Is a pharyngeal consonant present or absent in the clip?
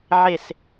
present